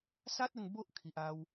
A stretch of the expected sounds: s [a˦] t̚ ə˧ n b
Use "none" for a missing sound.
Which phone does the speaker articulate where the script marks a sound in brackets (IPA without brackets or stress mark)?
a˦